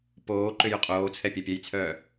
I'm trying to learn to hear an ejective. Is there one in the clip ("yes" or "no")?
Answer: yes